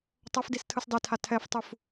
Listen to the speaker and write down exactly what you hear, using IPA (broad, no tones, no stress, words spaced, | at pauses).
tˤʌfdis tʰɯsdˤitʰa tʰɛftˤuf